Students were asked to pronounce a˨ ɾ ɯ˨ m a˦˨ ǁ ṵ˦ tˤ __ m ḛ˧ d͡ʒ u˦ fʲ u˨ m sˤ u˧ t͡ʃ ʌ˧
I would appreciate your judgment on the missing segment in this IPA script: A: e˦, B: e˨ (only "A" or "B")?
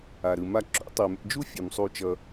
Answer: B